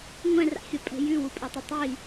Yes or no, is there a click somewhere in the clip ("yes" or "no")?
no